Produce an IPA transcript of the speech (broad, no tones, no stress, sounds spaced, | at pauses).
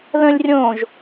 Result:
ð ə̃ lʲ rʲ õ ʒ